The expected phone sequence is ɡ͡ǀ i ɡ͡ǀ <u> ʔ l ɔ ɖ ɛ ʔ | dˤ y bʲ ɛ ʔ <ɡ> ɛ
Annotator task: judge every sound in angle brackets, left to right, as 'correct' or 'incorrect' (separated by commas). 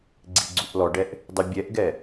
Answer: correct, correct